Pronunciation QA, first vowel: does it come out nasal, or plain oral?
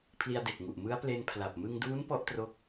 oral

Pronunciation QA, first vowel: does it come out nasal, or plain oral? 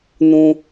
nasal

